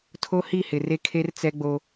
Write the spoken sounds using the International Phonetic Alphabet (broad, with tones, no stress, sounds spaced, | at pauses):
tʰ o˦ h i˦˨ h ɪ˨ r e˦ kʰ e˦ r t͡s ɛ˦ ɡ͡b o˦